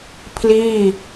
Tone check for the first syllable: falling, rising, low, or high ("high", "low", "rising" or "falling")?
falling